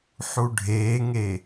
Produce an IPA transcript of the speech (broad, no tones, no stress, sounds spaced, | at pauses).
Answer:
ħ u ɖʱ eː ŋ e